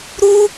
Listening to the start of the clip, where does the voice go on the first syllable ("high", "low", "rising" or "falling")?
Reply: high